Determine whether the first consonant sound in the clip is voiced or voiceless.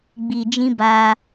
voiced